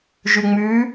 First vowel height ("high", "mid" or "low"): high